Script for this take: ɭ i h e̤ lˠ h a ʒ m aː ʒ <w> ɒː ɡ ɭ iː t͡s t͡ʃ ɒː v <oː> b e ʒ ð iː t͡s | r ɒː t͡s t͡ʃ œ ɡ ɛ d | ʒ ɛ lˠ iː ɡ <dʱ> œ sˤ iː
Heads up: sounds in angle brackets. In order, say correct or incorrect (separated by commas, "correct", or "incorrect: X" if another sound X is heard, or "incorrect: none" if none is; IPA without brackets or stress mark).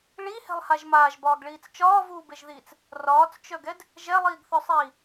incorrect: b, incorrect: uː, incorrect: θ